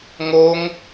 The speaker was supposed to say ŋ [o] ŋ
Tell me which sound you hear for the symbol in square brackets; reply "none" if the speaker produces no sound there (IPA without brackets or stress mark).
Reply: o